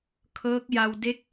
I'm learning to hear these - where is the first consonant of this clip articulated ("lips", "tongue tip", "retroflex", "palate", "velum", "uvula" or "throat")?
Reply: velum